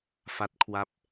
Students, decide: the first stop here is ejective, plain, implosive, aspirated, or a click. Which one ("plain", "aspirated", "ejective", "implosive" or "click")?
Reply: plain